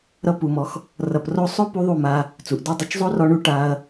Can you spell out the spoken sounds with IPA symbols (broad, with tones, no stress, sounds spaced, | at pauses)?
ɾ ʌ˧ p u˨ m ɔ˨˦ x | r ʌ˨ p r o˧ sˤ o˦ p u˧ ðˤ u˦˨ m a˧ | t͡s u˨ ʔ d o˦ dˤ ʌ˧ t͡ʃ zˤ o˦ r ɔ˧ ɳ u˧ ʈ a˧ ɐ̯